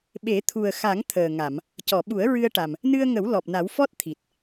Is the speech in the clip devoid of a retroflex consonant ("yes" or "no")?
no